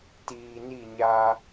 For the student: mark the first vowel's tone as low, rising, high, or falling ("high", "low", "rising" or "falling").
low